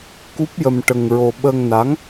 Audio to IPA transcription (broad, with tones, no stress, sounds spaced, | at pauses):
k u˦˥ p̚ j ə˧ m ʈ ə˧ ŋ ɹ o˧ ɓ ə˧ ŋ n a˧˥ ŋ